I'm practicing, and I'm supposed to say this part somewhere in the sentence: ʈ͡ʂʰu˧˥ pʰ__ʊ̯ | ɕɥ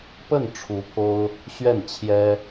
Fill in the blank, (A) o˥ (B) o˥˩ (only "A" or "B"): A